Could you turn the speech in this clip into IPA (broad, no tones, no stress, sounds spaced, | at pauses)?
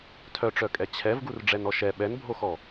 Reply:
tʰ œ ʈ͡ʂ œ kʼ ɛ t͡ɕʰ ɛ v ɡ u r ɖ͡ʐ ɛ n ɔ ʃ ɛ ɓ ɛ n bʱ o x ɔ